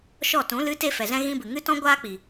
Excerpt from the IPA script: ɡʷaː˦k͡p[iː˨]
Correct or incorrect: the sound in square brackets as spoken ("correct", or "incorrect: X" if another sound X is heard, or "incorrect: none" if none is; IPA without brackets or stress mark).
incorrect: i˨